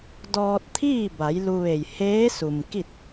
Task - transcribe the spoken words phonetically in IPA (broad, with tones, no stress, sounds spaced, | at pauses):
d ɔː˧ t̚ t̪ʰ iː˥˨ b a˩˧ j l u˧ ʋ e˧˩ j h eː˧˥ s u˩ m k i˥˨ t̚